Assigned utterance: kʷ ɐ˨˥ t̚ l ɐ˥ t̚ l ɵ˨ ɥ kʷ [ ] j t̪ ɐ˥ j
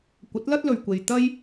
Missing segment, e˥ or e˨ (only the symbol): e˨